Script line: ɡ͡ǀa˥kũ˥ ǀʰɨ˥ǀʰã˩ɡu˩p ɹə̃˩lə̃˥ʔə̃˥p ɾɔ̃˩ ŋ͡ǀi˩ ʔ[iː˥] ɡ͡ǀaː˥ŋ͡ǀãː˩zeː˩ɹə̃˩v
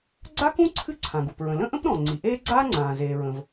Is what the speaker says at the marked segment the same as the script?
no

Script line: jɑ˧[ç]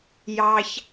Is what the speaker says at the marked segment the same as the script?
yes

